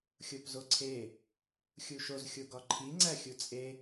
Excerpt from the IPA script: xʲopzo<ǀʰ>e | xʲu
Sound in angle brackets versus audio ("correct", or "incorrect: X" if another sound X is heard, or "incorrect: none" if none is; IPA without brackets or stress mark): correct